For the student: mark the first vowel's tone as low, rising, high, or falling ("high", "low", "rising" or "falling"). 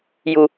low